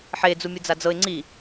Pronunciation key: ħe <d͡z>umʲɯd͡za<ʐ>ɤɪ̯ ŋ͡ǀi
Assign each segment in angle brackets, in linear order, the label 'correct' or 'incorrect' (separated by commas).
correct, incorrect